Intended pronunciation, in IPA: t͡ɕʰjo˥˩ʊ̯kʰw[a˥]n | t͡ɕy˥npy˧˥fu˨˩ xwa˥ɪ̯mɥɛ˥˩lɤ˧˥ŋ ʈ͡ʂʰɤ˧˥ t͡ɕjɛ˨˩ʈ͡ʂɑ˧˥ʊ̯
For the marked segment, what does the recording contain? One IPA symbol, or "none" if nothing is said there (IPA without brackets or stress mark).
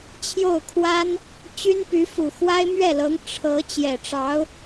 a˥